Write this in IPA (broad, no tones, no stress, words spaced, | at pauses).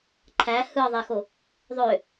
ǃʰæ hɯðˤexo | ðˤø